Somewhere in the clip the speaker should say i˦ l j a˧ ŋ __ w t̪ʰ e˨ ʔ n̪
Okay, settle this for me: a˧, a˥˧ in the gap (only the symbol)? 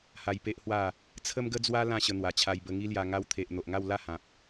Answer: a˧